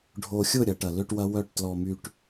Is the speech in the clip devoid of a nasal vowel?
yes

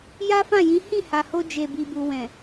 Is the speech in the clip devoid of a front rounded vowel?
yes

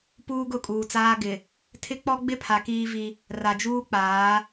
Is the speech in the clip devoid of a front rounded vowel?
yes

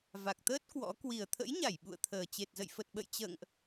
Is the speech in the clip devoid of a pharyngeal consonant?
yes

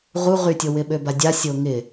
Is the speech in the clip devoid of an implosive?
no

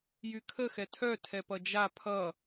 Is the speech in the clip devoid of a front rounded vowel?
no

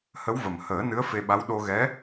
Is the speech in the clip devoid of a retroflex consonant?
yes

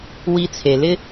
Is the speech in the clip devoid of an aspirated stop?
no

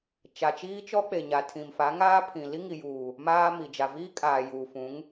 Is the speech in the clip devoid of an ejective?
no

